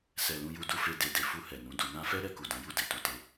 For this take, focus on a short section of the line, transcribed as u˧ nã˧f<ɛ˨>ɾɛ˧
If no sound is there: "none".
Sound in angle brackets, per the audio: ɛ˦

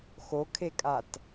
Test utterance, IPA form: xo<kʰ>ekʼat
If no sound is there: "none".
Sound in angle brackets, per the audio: kʰ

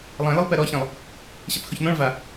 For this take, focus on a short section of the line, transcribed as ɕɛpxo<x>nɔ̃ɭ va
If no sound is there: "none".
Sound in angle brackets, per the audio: ç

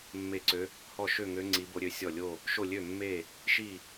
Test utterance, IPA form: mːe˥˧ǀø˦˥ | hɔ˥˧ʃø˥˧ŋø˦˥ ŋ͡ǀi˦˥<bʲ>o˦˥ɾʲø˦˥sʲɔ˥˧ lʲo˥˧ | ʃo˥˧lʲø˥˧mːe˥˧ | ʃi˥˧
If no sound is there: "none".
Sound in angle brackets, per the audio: b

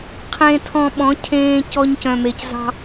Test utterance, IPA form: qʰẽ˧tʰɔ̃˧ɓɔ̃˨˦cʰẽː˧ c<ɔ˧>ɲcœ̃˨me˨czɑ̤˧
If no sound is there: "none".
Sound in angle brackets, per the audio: ɔ˧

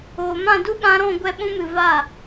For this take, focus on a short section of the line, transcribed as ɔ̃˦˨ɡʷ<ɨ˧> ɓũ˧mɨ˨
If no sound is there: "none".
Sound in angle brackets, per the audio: ɛ˧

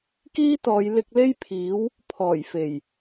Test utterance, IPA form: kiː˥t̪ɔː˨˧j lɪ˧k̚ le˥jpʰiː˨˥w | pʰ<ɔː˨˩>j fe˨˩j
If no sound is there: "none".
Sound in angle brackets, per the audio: ɔː˨˩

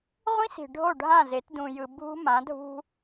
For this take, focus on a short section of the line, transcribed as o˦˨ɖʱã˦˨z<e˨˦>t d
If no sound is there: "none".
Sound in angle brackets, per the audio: e˨˦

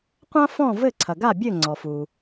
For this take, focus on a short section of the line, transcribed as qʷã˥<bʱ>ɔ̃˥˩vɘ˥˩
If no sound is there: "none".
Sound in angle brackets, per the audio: f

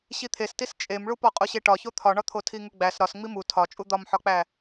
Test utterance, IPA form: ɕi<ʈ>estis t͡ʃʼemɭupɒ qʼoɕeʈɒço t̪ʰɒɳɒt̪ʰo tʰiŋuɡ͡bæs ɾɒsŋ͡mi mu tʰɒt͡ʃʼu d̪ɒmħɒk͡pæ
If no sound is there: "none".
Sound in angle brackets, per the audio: t̪ʰ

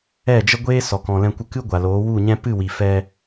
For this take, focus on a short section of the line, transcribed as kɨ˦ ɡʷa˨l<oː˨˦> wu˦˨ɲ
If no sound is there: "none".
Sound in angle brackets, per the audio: oː˨˦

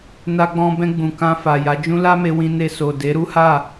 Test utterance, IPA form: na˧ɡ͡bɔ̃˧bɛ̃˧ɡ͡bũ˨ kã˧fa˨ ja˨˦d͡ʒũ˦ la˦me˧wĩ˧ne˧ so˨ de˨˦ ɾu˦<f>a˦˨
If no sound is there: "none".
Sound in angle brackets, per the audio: h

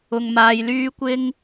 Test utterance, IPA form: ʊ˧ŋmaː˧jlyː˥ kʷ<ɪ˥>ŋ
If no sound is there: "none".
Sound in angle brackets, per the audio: ɪ˥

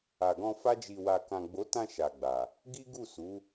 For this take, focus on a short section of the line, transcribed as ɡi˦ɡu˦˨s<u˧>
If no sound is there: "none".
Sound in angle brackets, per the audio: u˨˦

